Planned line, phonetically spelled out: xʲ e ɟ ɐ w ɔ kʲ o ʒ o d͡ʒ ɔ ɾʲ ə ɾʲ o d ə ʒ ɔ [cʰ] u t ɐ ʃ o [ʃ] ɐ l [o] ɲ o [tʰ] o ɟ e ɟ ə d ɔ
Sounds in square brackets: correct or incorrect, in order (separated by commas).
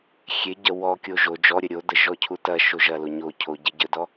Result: correct, incorrect, correct, incorrect